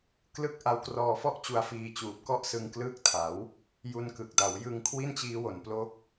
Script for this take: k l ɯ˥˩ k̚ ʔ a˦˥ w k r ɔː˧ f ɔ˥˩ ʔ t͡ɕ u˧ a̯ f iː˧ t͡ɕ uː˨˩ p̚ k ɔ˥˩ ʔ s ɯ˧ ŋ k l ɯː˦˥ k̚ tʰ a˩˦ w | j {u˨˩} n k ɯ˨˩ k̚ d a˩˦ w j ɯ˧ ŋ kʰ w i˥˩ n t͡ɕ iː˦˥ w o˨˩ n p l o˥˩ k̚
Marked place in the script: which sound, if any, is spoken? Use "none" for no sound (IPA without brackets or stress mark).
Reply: u˧